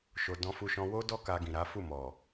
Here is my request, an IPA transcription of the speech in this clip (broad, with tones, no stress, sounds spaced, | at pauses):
ʃ o˨ d ɔ̃˧ f u˧ ʃ ɔ̃˧ w o˦ d ɔ˦ k a˧ ɡ ĩ˨ ɾ a˨˦ f u˦˨ m ɔ˨